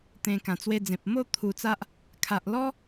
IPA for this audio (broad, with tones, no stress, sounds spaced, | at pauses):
t̪ ẽ˧ k ã˨˩ t͡s w e˧ d͡z ẽ˨ p̚ m o˥˧ t̪ʰ u˧ t͡s a˦ ʔ | kʰ a˨ ʔ l ɔ˦